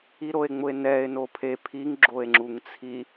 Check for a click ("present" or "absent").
present